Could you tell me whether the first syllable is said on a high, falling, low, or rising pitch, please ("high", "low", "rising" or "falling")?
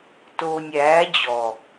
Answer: low